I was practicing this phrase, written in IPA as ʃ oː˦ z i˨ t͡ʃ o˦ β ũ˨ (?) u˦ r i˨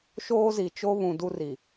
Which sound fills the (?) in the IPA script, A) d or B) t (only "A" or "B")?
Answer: A